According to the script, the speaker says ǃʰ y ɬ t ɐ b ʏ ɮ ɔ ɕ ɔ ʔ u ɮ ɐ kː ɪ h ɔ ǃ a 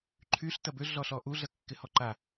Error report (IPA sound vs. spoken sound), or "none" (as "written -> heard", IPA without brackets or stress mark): ɕ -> ɬ